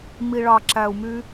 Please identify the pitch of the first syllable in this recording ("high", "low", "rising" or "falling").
low